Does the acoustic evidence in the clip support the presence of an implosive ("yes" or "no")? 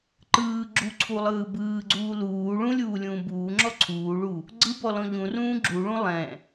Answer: no